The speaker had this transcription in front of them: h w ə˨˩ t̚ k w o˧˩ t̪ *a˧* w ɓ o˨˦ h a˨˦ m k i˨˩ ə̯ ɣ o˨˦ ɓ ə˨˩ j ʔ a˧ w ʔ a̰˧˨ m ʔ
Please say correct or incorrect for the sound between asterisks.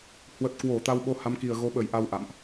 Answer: correct